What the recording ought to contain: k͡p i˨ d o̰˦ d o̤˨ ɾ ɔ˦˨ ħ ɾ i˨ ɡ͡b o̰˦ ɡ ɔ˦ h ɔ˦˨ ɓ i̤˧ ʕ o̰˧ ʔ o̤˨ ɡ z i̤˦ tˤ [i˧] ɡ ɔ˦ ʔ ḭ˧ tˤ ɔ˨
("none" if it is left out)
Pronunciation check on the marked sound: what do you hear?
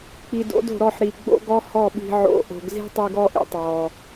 i˧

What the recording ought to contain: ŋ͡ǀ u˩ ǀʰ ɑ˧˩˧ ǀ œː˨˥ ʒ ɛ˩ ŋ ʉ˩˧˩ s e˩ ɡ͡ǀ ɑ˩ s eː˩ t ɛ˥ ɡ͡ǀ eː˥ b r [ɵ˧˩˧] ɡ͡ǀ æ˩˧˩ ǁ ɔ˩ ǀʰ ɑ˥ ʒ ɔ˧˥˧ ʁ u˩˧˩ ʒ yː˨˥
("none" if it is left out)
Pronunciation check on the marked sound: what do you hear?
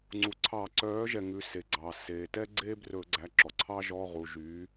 ɵ˧˩˧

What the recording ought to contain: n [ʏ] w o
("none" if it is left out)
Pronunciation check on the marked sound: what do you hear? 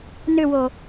ʏ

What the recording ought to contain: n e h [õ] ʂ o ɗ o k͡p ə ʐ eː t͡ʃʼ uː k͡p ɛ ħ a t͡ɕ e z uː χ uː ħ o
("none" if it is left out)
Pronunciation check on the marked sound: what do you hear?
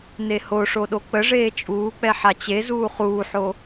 o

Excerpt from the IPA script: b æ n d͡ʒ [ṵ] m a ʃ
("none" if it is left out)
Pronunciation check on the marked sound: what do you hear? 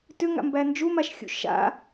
u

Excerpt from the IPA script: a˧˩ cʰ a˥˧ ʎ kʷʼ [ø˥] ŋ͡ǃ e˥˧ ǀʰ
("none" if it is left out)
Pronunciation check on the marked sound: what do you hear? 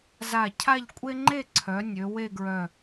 e˥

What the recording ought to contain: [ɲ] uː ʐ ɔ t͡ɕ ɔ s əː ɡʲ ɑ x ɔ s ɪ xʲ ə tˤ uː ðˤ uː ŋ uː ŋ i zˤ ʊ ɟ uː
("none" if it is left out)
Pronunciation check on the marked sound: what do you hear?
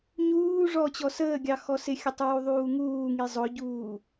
ɲ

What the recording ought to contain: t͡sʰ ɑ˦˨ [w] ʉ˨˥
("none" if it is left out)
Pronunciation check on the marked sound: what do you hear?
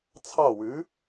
w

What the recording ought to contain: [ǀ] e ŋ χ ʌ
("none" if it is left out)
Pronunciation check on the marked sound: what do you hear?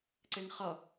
ǀ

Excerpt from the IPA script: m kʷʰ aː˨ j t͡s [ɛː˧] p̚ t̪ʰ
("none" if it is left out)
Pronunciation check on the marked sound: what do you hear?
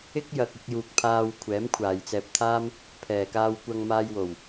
ɛː˧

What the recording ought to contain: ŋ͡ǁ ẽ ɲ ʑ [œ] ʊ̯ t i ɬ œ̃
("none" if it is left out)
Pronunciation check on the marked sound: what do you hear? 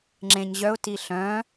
œ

